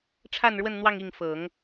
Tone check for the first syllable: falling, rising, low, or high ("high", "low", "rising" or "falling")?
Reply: falling